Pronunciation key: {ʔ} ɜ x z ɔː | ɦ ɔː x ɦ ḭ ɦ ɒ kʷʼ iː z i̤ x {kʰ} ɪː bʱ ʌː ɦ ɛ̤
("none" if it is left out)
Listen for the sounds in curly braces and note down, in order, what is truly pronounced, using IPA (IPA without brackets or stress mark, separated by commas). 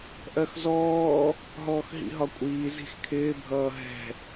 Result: ʔ, kʰ